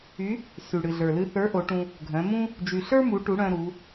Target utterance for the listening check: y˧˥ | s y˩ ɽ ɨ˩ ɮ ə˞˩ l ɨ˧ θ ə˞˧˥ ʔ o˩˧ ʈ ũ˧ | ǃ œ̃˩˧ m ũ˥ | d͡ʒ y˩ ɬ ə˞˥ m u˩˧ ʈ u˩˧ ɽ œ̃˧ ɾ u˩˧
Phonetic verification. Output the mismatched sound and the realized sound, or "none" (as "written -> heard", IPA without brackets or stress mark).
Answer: ǃ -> ɡʱ